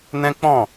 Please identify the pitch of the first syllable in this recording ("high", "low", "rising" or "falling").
high